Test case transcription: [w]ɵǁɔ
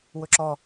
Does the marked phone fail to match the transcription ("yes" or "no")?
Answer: no